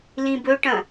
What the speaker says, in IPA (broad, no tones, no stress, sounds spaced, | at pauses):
l ĩ b ɵ ʈ ɐ̃